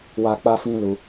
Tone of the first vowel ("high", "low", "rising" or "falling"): high